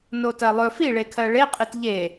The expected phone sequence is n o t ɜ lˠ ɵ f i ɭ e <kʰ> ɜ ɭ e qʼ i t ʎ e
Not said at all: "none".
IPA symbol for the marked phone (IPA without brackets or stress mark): kʰ